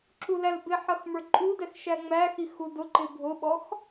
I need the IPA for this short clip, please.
ǁulælbɪħʌx mə˞ǃʼudɛx ʃæŋ͡mæxi xudʊǃɪ bʱʊɓɔx

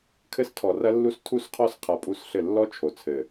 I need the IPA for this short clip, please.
kʰɘ˧stʰɔ˨rɐ˧lːu˧s tʰu˦˨sqʰɔ˦s qʰa˧pʼu˦˨sɬɘ˦˨ lːɔ˦t͡ʃʰo˨t͡sʰɘ˨

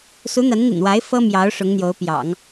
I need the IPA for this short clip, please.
su˧˥n̪a˧˥nn̪ḭ˨˩nwa˧˥ɪ̯ fɤ˥mjɑ˧˥ʊ̯ ʂʊ˧˥ŋn̪jo˧˥ʊ̯pjɑ̰˨˩˦ŋ

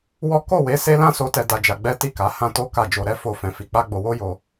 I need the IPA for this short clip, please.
wɔ˦ ko˦˨we˨˦ se˦lã˦so˧tɛ˧ da˧ d͡ʒa˧ɡ͡bɛ˦ ti˦˨ka˨˦ hã˦to˦ka˦˨ d͡ʒo˧ɾɛ˦ fo˦˨ fɛ̃˧fi˧ k͡pa˦ɡ͡bo˧wo˦jo˧

